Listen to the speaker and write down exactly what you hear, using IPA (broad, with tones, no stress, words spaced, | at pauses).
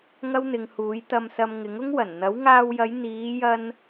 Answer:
ŋɐ˥wn̪ɪ˨˧ŋhuː˨˥j t̪ɐ˨msɐ˨m ŋɪ˨˥ŋʊ˥ŋwɐ˨˩n n̪ɐ˨˥wŋaː˧wjɐ˨˧j n̪iː˨˧jɐ˧n